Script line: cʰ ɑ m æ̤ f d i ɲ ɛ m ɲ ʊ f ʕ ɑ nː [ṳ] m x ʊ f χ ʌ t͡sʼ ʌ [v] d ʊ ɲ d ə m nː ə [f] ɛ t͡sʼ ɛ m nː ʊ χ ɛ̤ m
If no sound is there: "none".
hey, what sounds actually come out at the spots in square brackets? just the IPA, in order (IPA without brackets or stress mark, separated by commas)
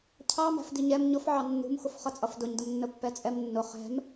ṳ, f, pː